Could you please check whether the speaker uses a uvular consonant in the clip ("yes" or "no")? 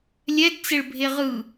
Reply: yes